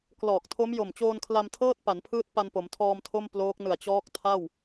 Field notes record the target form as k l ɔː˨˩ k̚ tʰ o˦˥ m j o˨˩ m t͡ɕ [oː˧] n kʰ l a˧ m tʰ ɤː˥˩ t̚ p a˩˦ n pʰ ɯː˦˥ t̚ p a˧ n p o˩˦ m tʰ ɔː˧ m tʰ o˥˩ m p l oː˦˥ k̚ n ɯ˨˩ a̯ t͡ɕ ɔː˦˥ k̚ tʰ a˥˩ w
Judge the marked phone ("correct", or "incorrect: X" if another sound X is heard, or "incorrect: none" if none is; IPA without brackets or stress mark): correct